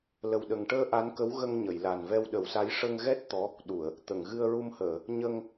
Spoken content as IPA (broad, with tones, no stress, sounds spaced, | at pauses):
l ə˨˩ w ɗ ə˨˩ ŋ ʈ əː˧ ʔ a˧˥ n k ə˧˥ w ɣ ə˧ ŋ ɲ ə˨˩˨ j l a˨˩ n v ɛ˧ w ɗ ə˨˩˦ w s a˧˥ j ʂ ə˧ ŋ ɣ ɛ˦˥ t̚ t̪ ɔ˧˥ | ɗ u˨˩˨ ə̯ | t̪ ə˨˩˨ ŋ ɣ ɨ˧ ə̯ ɹ u˧ m h əː˨˩˨ | ɲ ə˧ ŋ